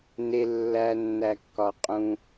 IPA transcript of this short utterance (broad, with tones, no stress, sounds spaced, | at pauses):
n e˧ lː æ˧ nː æ˨ kː ɒ˨ qʼ ũ˧